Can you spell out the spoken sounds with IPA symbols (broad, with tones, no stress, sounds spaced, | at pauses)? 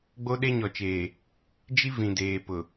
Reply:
ɡ͡b o˦ ɗ e˦ ɲ ɔ˨ t͡ʃ eː˨ | d͡ʒ i˦ v ĩ˨ d eː˨ p ʊ˨